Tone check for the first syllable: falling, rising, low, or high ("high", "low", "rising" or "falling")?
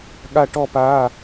falling